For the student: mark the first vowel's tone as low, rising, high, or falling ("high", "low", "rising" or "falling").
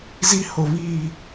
high